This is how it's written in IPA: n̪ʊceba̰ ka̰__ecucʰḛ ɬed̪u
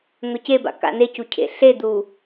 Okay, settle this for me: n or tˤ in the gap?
n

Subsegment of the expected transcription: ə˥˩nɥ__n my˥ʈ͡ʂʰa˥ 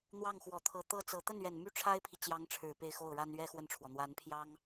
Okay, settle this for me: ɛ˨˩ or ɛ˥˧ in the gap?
ɛ˨˩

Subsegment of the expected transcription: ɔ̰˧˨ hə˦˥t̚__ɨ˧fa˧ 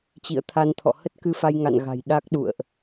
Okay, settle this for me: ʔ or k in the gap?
k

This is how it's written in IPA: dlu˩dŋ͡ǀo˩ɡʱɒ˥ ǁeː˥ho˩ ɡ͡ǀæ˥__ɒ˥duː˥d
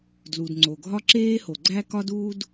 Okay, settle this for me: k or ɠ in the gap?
k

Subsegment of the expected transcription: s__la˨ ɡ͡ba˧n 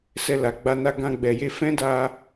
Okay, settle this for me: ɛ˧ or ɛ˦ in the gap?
ɛ˧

